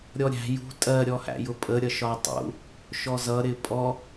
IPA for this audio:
ɾʲ ɔ ɾʲ æ̤ j ṳ tʼ ɜ ɾʲ ɔ h æ̰ j ʊ pʼ ə ɾʲ ʌ ʃ ɒ tˤ ṵ | ʃ ɔ z ʌ ɾ ɪ pʼ ɔ

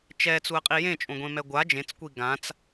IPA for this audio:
t͡ʃ ɛ t͡s u ə̯ qʼ i j ẽ t͡ʃʼ õ ɡʷ ẽ m ɛ ɡʷ a d͡ʒ ẽ t͡s kʷ i ɡ ã t͡s

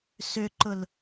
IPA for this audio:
s ʏ ǃ ʊ l

